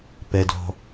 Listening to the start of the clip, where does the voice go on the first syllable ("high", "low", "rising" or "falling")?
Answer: low